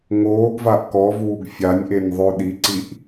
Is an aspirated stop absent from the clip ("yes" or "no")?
yes